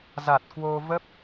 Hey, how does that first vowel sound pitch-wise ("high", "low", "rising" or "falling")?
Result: low